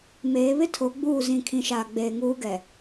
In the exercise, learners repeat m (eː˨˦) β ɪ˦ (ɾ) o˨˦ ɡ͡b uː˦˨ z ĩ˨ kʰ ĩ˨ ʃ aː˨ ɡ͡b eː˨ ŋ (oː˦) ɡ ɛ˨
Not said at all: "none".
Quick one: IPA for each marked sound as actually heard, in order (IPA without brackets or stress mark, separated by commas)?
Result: eː˨˦, tʰ, uː˦